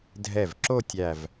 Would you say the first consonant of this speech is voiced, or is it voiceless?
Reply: voiced